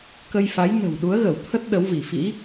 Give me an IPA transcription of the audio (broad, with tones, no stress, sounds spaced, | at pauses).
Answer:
k ə˧ j f a˨˦ j n ə̤˨˩ w ɗ u˨˦ ə̯ ɣ ə˧˩ w t̪ʰ ə˦˥ t̚ ɗ ə˨˦ w v i˧˩ f ḭ˧˥